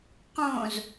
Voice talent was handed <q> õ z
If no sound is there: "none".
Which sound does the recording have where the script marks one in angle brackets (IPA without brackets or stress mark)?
q